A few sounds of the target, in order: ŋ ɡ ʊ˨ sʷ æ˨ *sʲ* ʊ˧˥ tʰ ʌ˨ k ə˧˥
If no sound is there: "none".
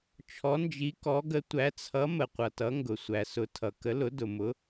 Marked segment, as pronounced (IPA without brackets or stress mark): s